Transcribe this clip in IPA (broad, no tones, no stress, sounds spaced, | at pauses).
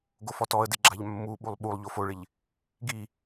ɡ o f ɔ t ɔ ə̯ d ɪ ɡ͡ǁ a ʎ mː u ɓ u lˠ ɓ u lˠ ʎ o f o ɭ ɪ ʎ | ɡ i